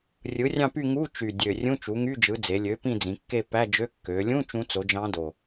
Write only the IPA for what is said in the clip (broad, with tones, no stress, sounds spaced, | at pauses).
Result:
rʲ ɯ˩˥ rʲ ɑ̃˦˨ p y˦˨ ŋ u˧˥˧ t͡ʃ y˨˩ dʲ ø˨˩ rʲ ũ˧˥˧ t͡ʃ u˩˥ ŋ y˧˥˧ d͡ʒ ɯ˩˥ d͡z e˩˧ lʲ ø˩˥ p ĩ˦˨ d͡z ĩ˩˧ kː e˦˨ p æ˧˥˧ d͡ʒ ø˧˥˧ kː ø˩˧ lʲ ũ˧˥˧ t͡ʃ ũ˧˥ t͡s o˩˥ d͡ʒ ɑ̃˧˥ d o˨˩